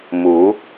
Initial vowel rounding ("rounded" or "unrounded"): rounded